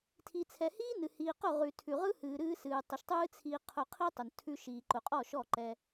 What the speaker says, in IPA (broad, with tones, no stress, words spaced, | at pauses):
tʰi˨t͡sʰɛ˨hiː˦ nɨ˨ hiː˨qʊ˦˨ ʁʉ˨ tʰʉ˨ʁɯ˦hɨː˨ ɾɨː˧sɨː˨tˤʊ˨ʃtˤɨː˦ t͡sʰiː˧qʰʊ˧ qʰi˦tˤʊ˨n tʰʉ˧ʃiː˨ ǃʊ˨qʼɔ˦˨ʃɔ˦˨ ǃɛ˧